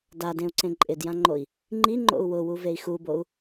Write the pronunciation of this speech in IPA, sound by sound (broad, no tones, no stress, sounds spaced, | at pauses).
d a d ẽ u̯ ǀ ẽ ǃʼ ɪ d j ã ŋ͡ǃ o i̯ | ŋ͡ǃ i ŋ͡ǃ o̰ u̯ w ʊ w u v e i̯ x u b o u̯